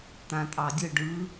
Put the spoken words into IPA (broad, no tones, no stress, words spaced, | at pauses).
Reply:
t̪ãtʼɑdʲə ɖɯ